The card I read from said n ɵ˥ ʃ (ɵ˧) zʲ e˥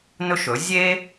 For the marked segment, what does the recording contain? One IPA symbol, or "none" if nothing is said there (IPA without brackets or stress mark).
ɵ˩˥